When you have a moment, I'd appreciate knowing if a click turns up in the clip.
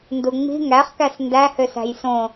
no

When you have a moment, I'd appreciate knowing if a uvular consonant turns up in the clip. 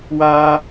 no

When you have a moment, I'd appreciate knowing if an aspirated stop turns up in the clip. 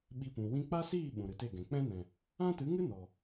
no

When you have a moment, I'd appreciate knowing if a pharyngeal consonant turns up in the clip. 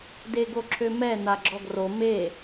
no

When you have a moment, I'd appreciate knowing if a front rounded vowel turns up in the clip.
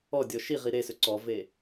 yes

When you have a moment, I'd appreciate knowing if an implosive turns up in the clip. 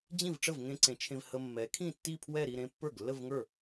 no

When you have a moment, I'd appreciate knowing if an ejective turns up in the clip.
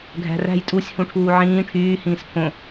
yes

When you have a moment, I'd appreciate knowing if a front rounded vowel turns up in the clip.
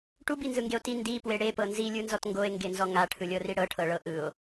no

